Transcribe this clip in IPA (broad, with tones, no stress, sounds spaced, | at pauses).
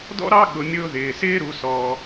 d ɔ̰˥ ɾ ɑ˥ ɠ ʊ˩˧ mʲ ʊː˧ ð ɪː˩ s ɪː˥ ɾ u˩˧ s ɔː˩